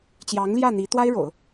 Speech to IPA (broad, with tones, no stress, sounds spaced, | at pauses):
t͡ɕ j ɑ˧˥ ŋ l j ä˥˩ n̪ i˧˥ t̪ w a˥ ɪ̯ ɻ o̰˨˩˦ ʊ̯